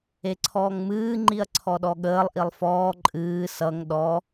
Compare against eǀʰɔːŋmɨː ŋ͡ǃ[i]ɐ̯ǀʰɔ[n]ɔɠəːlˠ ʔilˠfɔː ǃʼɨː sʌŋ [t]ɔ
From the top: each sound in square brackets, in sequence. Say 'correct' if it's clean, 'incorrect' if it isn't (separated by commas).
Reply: correct, incorrect, incorrect